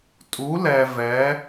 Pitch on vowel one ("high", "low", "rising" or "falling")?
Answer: rising